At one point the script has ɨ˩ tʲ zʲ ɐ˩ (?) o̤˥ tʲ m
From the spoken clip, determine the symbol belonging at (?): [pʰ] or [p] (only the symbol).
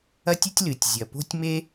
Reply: p